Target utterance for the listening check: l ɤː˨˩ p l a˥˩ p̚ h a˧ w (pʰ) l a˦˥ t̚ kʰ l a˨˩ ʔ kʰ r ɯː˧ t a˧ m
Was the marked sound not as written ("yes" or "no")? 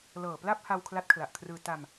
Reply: yes